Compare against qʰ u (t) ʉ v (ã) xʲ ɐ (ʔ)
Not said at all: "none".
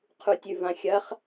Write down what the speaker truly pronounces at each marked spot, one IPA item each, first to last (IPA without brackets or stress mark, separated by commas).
tʲ, ã, χ